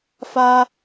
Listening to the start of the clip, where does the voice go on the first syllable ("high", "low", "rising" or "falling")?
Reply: high